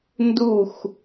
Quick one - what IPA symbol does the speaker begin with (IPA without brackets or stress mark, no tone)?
n